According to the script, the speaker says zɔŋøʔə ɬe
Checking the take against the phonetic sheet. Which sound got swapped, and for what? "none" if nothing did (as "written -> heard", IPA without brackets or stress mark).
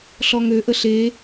z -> ɬ